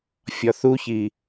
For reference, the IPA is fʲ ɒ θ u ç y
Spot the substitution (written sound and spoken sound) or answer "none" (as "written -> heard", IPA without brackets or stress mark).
y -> i